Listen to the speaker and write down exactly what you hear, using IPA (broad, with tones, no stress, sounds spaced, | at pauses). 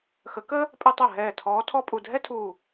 x ə˨˦ k əː˥ | pʼ ɛ˥ tˤ ɜ˥˩ ɦ ɛː˧˩ tʰ ɔː˨˦ tʰ ɔ˥ pʼ u˧˩ dʱ ɛ˥ tʰ uː˧˩